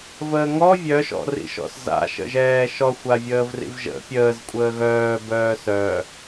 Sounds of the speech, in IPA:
v əː ŋ ɔ vʲ œ ʃ ɔ̰ r ḭ ʃ ɔ̰ s z a̰ ʃ ə̰ ʒ ɛː ʃ ɔ xʷ a vʲ əː v r ḭ v ʒ ə̰ pʲ əː z kʷʼ əː ɣ œː b œː s œ

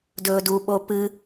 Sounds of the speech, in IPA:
d ɵː d u ɓ o p ɨ

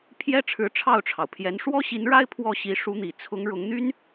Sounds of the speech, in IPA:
pʰ j ɛ˥ ʈ͡ʂʰ ɻ̩˧˥ ʈ͡ʂʰ ɑ˥˩ ʊ̯ ʈ͡ʂʰ ɑ˩ ʊ̯ pʰ j ɛ˧˥ n ʂ w ɔ˥ ɕ i˧˥ n ɻ a˥ ɪ̯ pʰ w ɔ˥˩ ɕ i˧˥ ʂ u˧˥ n̪ i˨˩ t͡sʰ ʊ˧˥ ŋ ɻ ʊ˧˥ ŋ n̪ y˥ n

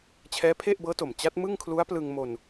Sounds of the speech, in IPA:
t͡ɕʰ ɛː˦˥ pʰ e˥˩ ʔ b ɤː˦˥ t o˨˩ m t͡ɕ a˦˥ t̚ m ɯ˥˩ ŋ kʰ l u˦˥ a̯ p l ɯ˧ ŋ m o˧ n

